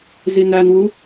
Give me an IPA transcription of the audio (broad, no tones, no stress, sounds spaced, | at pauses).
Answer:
z i n æ n w u